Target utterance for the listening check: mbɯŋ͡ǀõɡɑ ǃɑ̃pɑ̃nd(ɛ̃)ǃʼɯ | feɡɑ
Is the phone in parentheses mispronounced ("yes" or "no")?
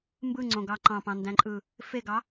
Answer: yes